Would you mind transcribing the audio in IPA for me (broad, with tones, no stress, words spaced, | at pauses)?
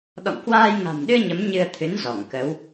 ɗɔ̰˧˨ŋkwaː˧j ŋa̤˨˩mɗɨ˧ə̯ ɲə˨˦mɲɨ˧ə̯t̪ʰɨ˨˦n zɔ˧˩ŋkə˨˦w